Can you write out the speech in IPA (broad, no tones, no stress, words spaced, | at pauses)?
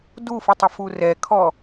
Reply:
dufɨ tˤɐfurɛkʰɔ